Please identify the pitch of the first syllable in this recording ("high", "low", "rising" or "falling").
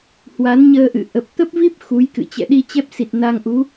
rising